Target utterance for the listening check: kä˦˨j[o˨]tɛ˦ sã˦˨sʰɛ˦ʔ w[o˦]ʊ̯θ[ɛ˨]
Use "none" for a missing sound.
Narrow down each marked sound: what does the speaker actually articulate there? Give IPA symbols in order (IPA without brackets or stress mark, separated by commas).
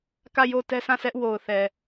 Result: o˦˨, o˨, ɛ˨